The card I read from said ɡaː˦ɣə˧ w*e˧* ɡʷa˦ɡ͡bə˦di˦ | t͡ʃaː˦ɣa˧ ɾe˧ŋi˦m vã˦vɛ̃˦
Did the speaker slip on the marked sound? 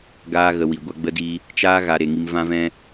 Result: yes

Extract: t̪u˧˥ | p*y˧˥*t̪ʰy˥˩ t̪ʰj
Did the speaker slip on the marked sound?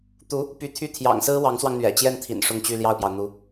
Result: no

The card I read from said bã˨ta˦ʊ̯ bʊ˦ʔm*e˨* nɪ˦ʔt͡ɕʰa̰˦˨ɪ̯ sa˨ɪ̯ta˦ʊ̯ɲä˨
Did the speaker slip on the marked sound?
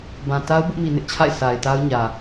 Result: yes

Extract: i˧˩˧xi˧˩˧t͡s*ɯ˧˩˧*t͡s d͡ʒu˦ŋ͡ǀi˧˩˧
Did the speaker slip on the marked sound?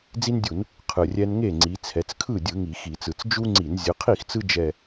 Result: no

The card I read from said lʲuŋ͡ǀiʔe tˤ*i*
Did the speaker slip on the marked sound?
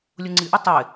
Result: yes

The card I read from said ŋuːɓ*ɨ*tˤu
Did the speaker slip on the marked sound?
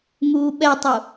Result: yes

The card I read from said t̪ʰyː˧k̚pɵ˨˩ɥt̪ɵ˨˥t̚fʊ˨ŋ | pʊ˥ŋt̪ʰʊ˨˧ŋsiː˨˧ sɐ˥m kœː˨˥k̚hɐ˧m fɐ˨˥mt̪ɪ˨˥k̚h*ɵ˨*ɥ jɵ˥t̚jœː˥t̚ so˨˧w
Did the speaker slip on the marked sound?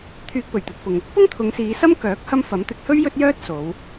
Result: yes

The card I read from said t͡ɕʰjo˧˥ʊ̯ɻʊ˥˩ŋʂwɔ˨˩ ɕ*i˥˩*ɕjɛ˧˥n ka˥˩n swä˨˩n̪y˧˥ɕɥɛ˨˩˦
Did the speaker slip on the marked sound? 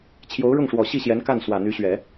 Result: no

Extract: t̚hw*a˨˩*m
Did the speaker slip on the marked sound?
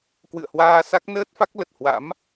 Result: yes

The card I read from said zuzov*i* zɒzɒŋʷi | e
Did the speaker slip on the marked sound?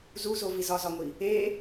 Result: no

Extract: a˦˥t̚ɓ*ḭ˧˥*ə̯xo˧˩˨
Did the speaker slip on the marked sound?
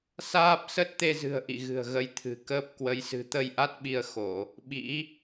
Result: yes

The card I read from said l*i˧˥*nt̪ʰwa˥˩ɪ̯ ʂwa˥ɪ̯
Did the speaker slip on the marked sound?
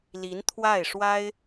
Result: no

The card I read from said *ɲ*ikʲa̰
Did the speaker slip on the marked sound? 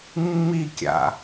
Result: yes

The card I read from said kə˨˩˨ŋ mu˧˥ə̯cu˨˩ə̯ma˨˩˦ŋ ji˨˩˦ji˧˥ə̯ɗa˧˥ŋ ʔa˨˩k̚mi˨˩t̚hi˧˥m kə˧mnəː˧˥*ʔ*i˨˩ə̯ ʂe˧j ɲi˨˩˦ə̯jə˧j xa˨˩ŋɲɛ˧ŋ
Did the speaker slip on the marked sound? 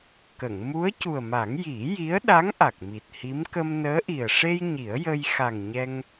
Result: no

